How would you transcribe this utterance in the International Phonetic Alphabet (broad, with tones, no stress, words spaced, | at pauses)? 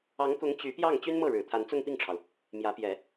ɑ˧˥ŋkʊ˧˥ŋ t͡ɕy˧˥pjɑ˥˩ŋ t͡ɕy˥nmɤ˥˩ɻɻ̩˨˩ t̪ʰa˧˥nt͡sʊ˥˧ŋ pi˥˩ŋʈ͡ʂʰɑ˩ʊ̯ | mjä˧˥pjɛ˨˩˦